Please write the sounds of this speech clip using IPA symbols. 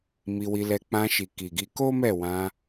m i˧ w i˧ l ɛ˧ k͡p ã˧ ʃ i˨ k i˨ ɡ i˧ k o˦ m ɛ˦˨ w ã˧

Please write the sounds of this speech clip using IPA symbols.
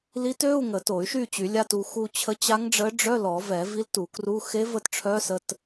l i˧˥ t ø˧˥˧ u̯ ŋ ə˨˩˦ t o˨˩˦ y̯ ʃ y˦˨ t͡ɕ y˨˩˦ lʲ a˧˥˧ t u˦˨ x u˦˨ t͡ɕʰ ə˧˥ t͡ɕ a˧˥ ŋ ɖ͡ʐ ə˧˥ ɖ͡ʐ œ˧˥˧ l ɔ˨˩˦ v ɛ˨˩˦ v i˧˥ l t u˨˩˦ k r u˧˥˧ x e˧˥ v ə˦˨ t ʈ͡ʂʰ œ˧˥ s ə˧˥˧ t

